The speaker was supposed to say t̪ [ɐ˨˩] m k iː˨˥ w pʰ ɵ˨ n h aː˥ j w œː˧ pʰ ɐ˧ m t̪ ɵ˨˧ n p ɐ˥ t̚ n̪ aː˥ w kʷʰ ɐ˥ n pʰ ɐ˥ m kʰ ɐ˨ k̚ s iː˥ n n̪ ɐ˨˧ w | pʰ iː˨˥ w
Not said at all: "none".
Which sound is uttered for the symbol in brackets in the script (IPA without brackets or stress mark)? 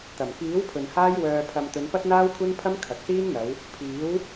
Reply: ɐ˨˩